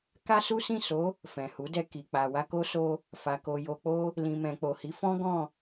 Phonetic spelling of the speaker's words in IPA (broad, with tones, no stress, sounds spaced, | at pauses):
k a˦ s u˦ s ĩ˦˨ s o˨˦ | f ɛ̃˨ h u˨˦ d ɛ˧ k i˨ k͡p a˨ w a˧ k o˦ s o˧ | f a˨ k o˨ j o˨ k͡p o˧ | l ĩ˨ m ɛ̃˨ k͡p o˨ h i˨˦ f ɔ̃˦ ɡ ɔ̃˦˨